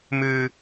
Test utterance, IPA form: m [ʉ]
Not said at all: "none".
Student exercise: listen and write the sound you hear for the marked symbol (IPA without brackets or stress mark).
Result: ʉ